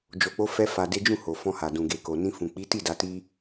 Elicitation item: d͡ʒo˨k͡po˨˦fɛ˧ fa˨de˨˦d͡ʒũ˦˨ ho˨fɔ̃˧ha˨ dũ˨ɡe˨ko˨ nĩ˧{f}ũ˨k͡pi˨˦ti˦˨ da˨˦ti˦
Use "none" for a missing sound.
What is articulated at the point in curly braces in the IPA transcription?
f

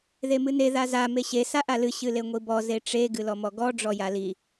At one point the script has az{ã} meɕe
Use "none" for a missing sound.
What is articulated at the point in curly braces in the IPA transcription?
a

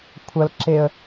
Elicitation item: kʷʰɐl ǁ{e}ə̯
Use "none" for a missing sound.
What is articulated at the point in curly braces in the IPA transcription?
e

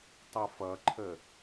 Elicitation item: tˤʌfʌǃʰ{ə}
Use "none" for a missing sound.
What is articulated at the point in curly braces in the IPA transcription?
ə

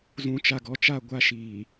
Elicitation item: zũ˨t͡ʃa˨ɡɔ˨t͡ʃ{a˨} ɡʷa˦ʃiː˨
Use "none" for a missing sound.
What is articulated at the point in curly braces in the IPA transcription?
a˦˨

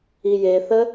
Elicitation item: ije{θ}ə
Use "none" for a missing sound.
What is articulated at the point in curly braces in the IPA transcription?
θ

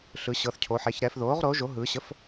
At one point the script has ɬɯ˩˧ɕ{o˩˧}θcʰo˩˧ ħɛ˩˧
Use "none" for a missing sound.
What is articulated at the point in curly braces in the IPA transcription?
ɤ˩˧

